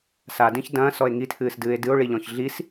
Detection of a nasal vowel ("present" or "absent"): present